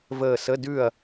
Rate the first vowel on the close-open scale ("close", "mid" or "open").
mid